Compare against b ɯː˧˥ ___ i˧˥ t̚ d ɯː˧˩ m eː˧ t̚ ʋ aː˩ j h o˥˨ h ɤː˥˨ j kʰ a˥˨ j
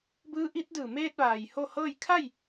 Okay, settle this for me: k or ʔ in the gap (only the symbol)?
ʔ